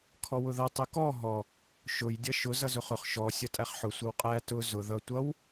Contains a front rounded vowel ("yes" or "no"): no